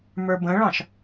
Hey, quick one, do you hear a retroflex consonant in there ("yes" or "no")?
yes